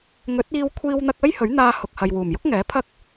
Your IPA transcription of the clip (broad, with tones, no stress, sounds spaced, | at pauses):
ŋ ɵ˨˥ t̚ iː˧ w kʷʰ iː˧ w n̪ ɐ˧ k̚ ɐ˥ j h ɵ˨˥ ɥ n̪ aː˧ h ʊ˨ k̚ h ɐ˨ j w uː˨˩ m j ʊ˥ k̚ ŋ ɛː˨˥ pʰ ɐ˥ k̚